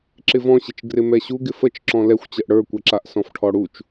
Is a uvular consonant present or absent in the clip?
absent